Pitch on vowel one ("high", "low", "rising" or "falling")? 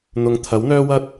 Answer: low